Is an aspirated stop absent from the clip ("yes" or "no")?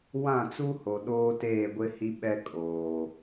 yes